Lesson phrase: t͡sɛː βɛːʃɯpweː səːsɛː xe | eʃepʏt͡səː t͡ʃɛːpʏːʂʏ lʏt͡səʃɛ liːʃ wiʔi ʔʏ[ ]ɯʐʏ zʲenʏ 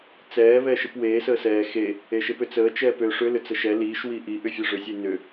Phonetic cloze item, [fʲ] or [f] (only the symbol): fʲ